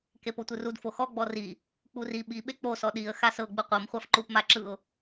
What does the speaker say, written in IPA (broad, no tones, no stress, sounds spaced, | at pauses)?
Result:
k e p o tʷ ɯ r u d f o x ɔ ɡ͡b ɔ r i | k͡p u r i ɓ i ɓ e k͡p o s ɔ ɗ i ə̯ x a s ɤ ɡ͡b ɯ qʷ ɤ m χʷ a f ǃ u p m a ǁ ɯ ʊ̯